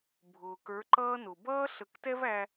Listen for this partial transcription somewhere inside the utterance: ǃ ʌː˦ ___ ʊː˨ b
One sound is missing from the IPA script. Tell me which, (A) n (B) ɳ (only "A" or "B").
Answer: A